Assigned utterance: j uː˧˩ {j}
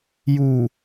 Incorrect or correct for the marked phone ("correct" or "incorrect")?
incorrect